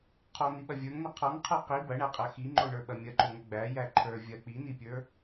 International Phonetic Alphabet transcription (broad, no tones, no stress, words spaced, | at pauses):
qʰɔn̪iɓɐ vʲə˞ŋnɐ qʰɔŋqʰə˞ qi bɐɳæqʼæ xiŋ͡ǃoɳə˞ɓɐ mʲɐǃoŋɐ ɡ͡bæjæ ǃʰə˞ vʲɐ k͡pinipʲə˞